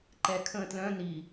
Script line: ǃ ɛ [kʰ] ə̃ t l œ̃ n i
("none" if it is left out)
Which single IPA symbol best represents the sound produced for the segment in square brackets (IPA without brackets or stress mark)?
kʰ